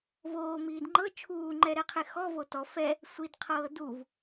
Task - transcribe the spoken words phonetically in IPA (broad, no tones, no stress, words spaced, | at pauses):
voːmiːd ŋ͡ǃɤ t͡ʃʰuːŋ͡ǃɛɾɛqʰe xɔvo tɔ fɛ | sʷidqʰɤː duv